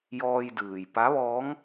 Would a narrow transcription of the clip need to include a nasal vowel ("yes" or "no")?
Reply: no